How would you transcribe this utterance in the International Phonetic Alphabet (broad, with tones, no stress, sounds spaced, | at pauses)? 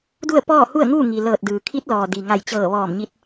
d u˥˨ ə̯ p ɔː˥˨ h u˥˨ ə̯ ŋ uː˥˨ ŋ i˩ l ɤː˧˩ t̚ d ɯː˩ kʰ i˧˥ t̚ l ɔː˩ d i˩ ŋ a˧˩ j t͡ɕ ɤː˧˩ ʋ ɔː˧˩ m ɲ i˧ t̚